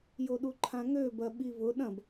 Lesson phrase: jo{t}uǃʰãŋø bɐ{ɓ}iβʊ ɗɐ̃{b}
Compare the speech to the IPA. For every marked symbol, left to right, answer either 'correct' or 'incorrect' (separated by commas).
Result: incorrect, correct, correct